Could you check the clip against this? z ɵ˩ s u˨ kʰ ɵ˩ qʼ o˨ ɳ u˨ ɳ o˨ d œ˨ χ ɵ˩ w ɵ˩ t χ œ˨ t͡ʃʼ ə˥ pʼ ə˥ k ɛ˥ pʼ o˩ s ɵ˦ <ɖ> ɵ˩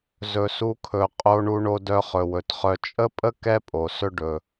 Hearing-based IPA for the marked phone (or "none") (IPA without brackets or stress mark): ɖ